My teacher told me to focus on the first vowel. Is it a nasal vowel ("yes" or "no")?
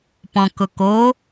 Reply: yes